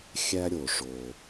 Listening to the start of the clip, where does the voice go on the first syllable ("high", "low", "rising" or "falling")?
high